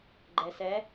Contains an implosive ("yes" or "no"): no